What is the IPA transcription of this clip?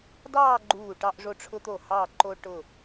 dɑː˥˧ɡ͡ǃuː˧˩ ʈɑ˧ʔʐo˧˩ʈ͡ʂʰʊ˧t̪o˧˩ hɑ˧˩ǃo˧ ʈʊ˧˩

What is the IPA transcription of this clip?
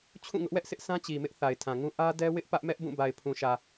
t͡ɕʰũ˦˨ŋʊ˦ʔwɛ˦ʔsɪ˦ʔ sʰã˦t͡ɕi˨mɪ˦ʔ θa˨ɪ̯tʰã˨ŋũ˦ ʔä˦dɛ˦wɪ˦ʔ pä˦ʔmɛ˦ʔbũ˦˨ ba˨ɪ̯pʰũ˨ʃä˨

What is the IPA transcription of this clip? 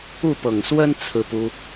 u˥˩pɤ˨˩ŋswə˥n t͡sʰɹ̩˥˩pu˥

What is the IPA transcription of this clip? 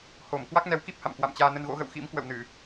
ho˧˩m kwa˦˥k̚nɛ˨˦wki˦˥p̚ha̰˧˨m kwa̰˧˨mt͡ɕaː˧ nə˧nɣo̰˧˥ɣə̰˧˨w xḭ˧˥mkwə̰˧˨w nɨ˧˩˨

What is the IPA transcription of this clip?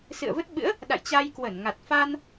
sɨ̰˧˨ə̯və˦˥t̚ɓɨ̰˧˥ə̯ | ɗa̰˧˨jt͡ɕa˧jkwə˧˩nŋa˨˩t̚ fa˧n

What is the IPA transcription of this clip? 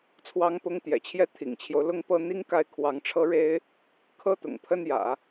t͡sʰwɑ˧˥ŋpʊ˧˥ŋ t̪jɛ̰˨˩t͡ɕʰjɛ˥˩ t̪ʰḭ˨˩ŋt͡ɕʰjo˦ʊ̯ lʊ˥ŋpɤ˥ n̪i˥ŋka˥˩ɪ̯ kʰwɑ˧˥ŋʈ͡ʂʰɤ˥ɻe˥ɪ̯ | kʰɤ˥t̪ʊ̰˨˩ŋpʰə˥njä̰˨˩˦

